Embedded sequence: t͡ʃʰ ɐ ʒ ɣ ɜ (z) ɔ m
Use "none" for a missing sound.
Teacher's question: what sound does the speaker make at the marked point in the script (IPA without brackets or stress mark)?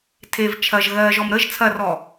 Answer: ʒ